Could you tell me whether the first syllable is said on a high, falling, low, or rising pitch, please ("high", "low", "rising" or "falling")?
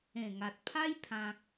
low